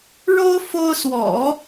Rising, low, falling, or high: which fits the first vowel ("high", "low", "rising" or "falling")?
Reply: high